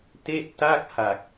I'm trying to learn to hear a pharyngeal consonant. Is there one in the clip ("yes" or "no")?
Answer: no